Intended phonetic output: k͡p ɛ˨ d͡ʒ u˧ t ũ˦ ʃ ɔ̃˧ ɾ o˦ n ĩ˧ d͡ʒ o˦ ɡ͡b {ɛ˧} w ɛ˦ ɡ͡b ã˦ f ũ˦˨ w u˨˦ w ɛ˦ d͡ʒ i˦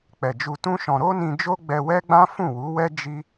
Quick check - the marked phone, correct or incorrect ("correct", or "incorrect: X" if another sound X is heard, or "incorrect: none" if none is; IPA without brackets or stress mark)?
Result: correct